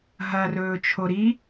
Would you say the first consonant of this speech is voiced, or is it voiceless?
voiced